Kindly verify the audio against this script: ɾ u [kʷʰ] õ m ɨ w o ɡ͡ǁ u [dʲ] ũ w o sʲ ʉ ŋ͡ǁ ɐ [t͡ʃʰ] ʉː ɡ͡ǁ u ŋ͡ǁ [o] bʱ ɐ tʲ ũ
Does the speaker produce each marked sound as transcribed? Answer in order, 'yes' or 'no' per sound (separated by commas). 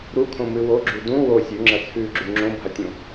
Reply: no, no, no, no